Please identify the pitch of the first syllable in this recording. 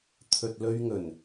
low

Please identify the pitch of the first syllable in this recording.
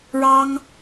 high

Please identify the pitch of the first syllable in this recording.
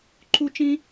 high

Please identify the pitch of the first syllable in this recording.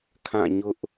falling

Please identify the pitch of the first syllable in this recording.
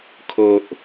low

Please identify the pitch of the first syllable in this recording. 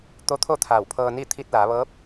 rising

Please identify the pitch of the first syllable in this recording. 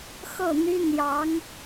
falling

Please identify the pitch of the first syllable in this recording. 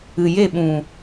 low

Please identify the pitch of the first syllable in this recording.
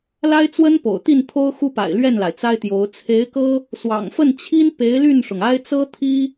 high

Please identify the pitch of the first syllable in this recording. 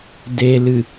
low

